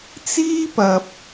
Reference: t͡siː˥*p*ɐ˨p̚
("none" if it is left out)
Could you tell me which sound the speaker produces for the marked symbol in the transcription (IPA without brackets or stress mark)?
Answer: p